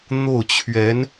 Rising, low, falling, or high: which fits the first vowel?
falling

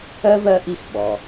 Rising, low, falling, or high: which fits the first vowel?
high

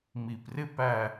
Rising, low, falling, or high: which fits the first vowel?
low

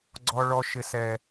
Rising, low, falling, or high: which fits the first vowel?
high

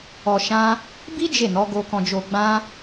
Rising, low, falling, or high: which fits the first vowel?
low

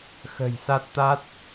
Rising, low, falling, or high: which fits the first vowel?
low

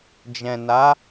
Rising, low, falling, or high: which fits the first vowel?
low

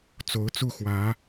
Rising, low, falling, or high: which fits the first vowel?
rising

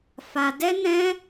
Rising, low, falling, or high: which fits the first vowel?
high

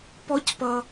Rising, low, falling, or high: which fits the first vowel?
high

